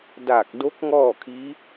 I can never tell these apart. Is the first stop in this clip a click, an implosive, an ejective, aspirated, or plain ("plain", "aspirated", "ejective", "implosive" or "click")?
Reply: plain